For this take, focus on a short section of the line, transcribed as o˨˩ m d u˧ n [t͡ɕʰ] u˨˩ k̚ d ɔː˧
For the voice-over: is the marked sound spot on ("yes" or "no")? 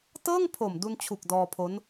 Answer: yes